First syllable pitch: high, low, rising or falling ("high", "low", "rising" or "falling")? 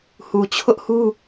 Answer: low